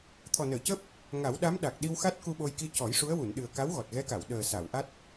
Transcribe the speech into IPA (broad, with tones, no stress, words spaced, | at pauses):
t̪ʰɔ˨˩nəː˨˩˨cəː˦˥p̚ | ŋa˨˩˦wɗa˧˥mɗa˨˩k̚ ɗi˧wxa˦˥t̚ ku˧ɓo˧jki˧ cɔ˨˩˦jʂu˧˥ə̯wu˨˩˨nɗɨ˨˩ə̯ ka˧˥wɣɔ˨˩t̚ɣɛ˧˥ka˨˩˨w ɗəː˨˩sa˨˩˨wʔa˦˥t̚